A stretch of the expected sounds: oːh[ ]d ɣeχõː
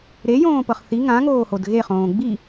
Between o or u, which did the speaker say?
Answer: o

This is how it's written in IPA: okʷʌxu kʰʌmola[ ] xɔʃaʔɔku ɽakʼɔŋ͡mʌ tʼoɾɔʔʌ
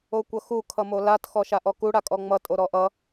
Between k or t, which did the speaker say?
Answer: t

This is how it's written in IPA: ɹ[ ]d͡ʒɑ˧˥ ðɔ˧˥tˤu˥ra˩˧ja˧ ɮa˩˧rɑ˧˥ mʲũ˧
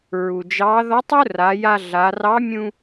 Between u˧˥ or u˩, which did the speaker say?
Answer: u˩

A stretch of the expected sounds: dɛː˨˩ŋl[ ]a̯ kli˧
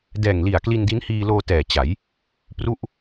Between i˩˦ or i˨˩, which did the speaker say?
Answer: i˨˩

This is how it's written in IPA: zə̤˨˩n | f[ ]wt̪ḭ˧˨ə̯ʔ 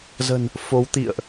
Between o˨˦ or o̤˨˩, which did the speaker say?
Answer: o˨˦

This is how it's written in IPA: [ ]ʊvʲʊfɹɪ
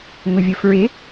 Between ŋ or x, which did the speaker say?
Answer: ŋ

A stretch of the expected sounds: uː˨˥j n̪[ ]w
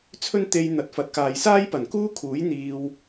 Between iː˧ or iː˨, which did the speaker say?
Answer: iː˧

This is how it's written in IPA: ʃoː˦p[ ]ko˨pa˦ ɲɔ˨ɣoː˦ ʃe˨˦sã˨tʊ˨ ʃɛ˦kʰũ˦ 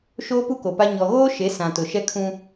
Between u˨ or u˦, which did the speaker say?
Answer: u˦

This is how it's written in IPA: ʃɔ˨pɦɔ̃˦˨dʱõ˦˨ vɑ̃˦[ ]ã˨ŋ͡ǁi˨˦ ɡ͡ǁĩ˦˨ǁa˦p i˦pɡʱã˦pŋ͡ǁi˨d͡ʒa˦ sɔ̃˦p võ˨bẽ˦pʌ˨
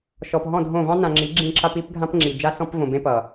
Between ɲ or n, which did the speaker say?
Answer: n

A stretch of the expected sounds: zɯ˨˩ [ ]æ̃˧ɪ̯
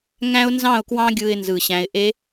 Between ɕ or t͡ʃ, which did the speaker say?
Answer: ɕ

